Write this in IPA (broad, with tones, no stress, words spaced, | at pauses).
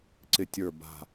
ǀɪ˦˨tʲə˞˦˨ba̤˦˨